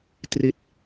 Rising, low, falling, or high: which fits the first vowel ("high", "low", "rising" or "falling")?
falling